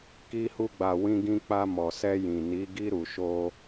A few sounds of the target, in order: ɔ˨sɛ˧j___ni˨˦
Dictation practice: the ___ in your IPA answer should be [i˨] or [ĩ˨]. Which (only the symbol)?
ĩ˨